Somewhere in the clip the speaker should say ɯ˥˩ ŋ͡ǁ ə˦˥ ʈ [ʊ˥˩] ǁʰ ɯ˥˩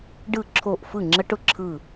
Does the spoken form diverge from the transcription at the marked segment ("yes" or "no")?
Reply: no